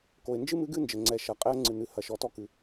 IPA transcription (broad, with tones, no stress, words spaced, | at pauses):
ko˩ɪ̯nd͡ʒɨ˥ mɨ˧˥ɡɨ˥nd͡ʒɘ˩ ŋ͡ǀɛ˩ʃɐ˩ qʼɛ˧˥ə̯ ŋ͡ǀɨ˩nɨ˩˧ hɐ˩˧ʃɔ˩˧tɔ˧ kɨ˩